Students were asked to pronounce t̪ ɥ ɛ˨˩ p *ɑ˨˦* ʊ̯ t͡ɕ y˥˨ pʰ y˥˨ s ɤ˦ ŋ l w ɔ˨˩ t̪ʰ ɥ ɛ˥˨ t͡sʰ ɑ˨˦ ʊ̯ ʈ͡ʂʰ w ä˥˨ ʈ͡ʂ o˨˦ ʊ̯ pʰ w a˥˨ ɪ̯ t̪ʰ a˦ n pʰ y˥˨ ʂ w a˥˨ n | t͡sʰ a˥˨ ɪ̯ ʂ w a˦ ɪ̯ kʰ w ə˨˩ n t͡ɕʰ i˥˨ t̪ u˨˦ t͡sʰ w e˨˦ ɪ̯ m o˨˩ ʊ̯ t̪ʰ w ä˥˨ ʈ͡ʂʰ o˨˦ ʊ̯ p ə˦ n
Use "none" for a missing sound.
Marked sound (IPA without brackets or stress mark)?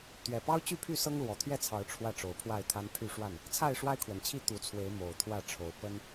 ɑ˦